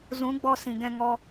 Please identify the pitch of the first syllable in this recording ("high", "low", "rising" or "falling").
rising